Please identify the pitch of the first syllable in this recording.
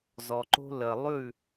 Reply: low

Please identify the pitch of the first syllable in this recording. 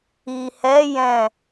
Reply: low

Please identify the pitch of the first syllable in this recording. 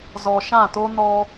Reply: low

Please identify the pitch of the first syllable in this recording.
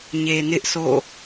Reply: low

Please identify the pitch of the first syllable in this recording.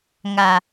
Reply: low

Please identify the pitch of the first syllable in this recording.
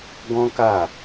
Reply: high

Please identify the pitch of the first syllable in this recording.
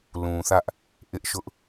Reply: low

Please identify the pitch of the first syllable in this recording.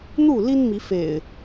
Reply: falling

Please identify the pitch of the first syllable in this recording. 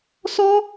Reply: high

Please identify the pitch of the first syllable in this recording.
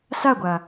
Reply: falling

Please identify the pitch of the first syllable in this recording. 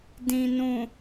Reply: low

